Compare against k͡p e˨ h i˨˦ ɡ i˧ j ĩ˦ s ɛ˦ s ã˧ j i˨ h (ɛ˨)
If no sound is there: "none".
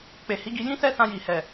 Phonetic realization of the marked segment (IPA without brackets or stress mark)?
ɛ˨